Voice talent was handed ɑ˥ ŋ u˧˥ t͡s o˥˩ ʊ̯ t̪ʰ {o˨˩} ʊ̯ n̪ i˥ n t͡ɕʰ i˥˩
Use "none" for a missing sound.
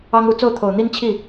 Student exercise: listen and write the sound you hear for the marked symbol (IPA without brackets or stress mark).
o˨˩